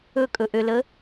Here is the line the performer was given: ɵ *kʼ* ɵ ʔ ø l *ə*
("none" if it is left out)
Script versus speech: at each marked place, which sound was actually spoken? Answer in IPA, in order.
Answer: kʼ, ə

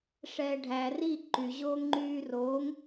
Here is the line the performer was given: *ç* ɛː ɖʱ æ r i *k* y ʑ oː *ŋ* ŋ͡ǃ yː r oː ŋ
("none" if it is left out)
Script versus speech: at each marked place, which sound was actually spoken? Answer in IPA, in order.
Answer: ʂ, ǃ, ŋ

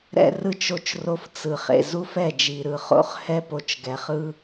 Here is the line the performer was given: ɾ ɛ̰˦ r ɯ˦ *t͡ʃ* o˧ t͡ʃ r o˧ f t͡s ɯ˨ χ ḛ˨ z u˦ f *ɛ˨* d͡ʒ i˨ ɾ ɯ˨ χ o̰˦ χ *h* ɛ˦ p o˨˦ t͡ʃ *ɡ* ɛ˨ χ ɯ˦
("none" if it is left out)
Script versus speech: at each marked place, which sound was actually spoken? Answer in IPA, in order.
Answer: t͡ʃ, ɛ˦˨, h, ɡ

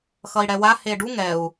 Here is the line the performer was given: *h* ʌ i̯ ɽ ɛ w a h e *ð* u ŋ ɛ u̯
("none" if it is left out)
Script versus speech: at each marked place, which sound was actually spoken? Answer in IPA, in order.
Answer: x, ɖ

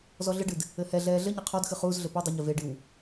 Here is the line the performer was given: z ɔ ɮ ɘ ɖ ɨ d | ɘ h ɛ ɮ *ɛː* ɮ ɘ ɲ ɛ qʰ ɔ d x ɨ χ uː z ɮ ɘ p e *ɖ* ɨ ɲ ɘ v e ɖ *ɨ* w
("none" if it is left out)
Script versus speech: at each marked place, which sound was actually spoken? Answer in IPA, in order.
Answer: ɛː, dˤ, ɨ

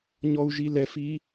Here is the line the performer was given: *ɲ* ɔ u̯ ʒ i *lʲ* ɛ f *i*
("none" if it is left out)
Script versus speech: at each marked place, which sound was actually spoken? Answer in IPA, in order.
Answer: ɲ, l, i

